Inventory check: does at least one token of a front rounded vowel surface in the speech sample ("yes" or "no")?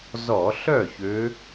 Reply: yes